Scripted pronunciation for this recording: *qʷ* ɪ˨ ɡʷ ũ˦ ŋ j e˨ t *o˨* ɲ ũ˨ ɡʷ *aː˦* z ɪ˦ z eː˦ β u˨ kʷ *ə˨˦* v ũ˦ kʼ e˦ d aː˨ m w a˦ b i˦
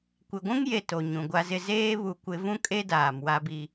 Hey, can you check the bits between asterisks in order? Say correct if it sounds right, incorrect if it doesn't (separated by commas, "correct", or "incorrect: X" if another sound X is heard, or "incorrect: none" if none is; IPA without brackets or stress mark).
incorrect: kʷ, correct, incorrect: a˦, incorrect: ɪ˨˦